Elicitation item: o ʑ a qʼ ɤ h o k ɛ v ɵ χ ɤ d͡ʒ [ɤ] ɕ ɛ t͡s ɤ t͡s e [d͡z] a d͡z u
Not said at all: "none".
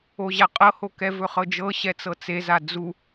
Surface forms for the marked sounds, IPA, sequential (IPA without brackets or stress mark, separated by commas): ɤ, z